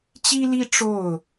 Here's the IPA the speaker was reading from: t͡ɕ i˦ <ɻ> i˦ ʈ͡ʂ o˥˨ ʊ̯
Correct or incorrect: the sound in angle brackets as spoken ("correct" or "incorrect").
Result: incorrect